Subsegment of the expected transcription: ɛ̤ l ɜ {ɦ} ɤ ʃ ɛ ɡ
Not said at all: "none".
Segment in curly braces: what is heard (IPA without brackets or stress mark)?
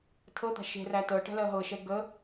ɦ